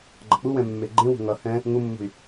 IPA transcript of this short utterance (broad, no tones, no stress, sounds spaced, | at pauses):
ɡ͡ǃ ʌ k͡p u w ɛ̃ mː e ɡ͡ǃ ẽ w o̤ ŋ ʌ h ɛ̃ | ŋ u mː ṳ y̯